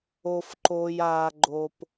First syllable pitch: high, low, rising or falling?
high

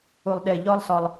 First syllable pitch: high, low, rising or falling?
low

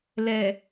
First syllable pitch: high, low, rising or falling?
low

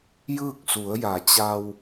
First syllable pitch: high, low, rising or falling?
falling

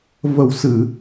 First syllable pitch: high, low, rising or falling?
low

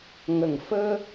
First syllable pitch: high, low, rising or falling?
low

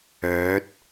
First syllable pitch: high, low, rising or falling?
rising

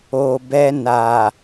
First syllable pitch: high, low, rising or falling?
low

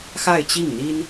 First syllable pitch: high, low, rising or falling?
falling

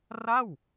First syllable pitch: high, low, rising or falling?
falling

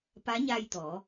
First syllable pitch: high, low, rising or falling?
rising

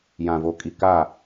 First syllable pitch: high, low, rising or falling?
low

